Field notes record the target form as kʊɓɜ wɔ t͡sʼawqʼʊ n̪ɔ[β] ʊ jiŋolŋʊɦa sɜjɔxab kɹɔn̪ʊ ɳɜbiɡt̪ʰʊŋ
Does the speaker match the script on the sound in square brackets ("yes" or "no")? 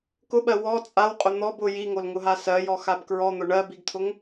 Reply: no